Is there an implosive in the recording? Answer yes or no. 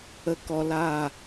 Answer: no